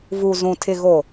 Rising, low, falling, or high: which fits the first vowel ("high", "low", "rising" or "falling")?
low